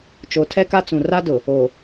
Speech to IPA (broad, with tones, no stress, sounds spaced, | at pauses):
t͡ʃ o˨ tʰ ɛ˦ k a˦ t͡s ũ˨ r a˦ d ʊ˨ | o˨